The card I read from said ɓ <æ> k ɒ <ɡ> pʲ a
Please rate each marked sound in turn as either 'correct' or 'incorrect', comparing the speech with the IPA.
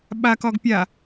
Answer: incorrect: a, correct

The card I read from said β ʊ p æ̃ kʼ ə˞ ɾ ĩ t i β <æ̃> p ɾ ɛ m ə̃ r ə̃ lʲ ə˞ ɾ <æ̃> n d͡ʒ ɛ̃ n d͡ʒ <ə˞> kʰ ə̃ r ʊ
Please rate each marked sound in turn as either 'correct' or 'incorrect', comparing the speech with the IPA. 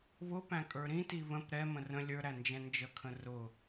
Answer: incorrect: ə̃, incorrect: æ, incorrect: ə

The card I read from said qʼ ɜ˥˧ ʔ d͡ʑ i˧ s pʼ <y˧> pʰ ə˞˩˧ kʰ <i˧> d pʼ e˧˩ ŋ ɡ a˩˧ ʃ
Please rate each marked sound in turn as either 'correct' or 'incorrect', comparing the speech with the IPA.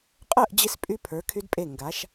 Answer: correct, incorrect: y˧

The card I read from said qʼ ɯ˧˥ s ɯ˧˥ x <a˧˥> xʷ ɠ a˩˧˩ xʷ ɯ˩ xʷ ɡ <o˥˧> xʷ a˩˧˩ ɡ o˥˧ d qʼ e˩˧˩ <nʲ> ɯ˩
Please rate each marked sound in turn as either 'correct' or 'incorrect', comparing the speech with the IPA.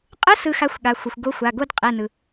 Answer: correct, incorrect: o˧˥, incorrect: n

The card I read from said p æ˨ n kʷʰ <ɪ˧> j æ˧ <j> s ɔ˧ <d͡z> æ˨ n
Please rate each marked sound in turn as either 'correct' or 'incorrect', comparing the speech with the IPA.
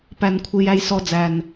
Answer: correct, correct, correct

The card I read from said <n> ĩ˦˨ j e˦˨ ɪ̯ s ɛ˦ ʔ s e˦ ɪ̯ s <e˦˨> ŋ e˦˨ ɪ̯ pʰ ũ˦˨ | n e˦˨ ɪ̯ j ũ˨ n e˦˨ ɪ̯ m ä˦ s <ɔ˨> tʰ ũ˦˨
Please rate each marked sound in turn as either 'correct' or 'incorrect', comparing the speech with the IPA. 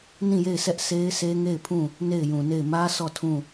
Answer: correct, incorrect: e˦, incorrect: ɔ˦˨

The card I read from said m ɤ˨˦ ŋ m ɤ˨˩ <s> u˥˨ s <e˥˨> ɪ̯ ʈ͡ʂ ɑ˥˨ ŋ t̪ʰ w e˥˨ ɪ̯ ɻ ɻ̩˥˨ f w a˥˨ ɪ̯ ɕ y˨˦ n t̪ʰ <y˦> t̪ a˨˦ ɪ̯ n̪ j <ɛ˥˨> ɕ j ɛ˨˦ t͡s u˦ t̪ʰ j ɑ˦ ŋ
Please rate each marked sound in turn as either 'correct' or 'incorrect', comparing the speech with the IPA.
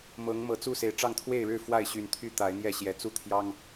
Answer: incorrect: t͡s, incorrect: e˨˩, correct, correct

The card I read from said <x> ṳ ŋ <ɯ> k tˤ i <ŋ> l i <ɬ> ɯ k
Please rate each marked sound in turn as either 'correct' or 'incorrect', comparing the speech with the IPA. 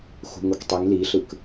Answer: correct, incorrect: u, correct, correct

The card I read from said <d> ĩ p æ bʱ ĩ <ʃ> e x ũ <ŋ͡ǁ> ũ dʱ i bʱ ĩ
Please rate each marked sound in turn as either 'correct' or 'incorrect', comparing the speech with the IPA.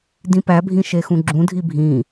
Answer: correct, correct, incorrect: ɡ͡ǁ

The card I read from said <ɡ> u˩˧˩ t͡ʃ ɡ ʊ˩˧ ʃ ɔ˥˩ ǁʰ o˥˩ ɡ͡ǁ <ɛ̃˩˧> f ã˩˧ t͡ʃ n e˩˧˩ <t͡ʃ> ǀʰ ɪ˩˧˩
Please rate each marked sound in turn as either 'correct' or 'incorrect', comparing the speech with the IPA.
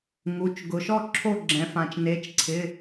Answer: incorrect: ŋ, correct, correct

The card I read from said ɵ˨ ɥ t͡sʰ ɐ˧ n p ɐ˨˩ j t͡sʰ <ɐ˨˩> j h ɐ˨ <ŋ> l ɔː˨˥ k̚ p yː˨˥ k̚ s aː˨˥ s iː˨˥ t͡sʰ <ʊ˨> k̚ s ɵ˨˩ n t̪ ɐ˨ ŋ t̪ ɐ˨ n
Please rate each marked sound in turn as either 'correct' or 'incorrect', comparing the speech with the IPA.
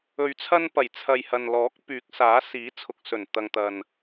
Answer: incorrect: ɐ˨, incorrect: n, correct

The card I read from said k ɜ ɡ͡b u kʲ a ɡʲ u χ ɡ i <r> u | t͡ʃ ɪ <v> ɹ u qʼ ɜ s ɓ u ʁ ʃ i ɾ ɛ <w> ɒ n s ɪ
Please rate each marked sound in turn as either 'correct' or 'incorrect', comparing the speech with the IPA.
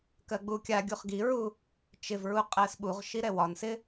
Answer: incorrect: ɹ, correct, correct

